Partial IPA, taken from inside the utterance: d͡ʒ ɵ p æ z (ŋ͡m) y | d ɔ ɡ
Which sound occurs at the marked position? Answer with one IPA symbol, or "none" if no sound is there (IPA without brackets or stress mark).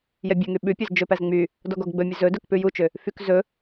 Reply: ŋ͡m